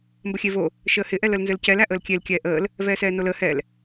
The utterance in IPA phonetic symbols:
mbəxʲevo | ʃəːhɪ ʔɛləlnzɘlcɛl æʔəːlkʲel kʲɛːʔəːl | vɛːsɛːnoləː hɛl

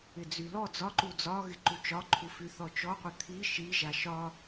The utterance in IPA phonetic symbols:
ɪd͡zylɔ d͡zɒǃu d͡zɒ ɣɪǃut͡ʃɒǃʰu fyθɔt͡ʃɔqʷɪ t̪ʰi ʃiʒa ʃɒ

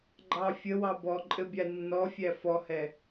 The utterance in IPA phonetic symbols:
ɡ͡ǃɑ fʲəwɑ bɔǃʼɘ bʲanːɔfʲæ fɔhɛ

